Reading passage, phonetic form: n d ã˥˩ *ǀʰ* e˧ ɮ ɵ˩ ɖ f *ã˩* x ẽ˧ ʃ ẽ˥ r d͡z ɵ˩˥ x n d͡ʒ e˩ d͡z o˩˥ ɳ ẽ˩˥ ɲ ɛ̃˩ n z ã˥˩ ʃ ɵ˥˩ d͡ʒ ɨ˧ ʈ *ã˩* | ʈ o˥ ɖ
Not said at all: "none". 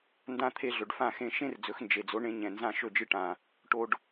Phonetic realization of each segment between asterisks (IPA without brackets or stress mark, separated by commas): t̪ʰ, ã˥˩, ã˩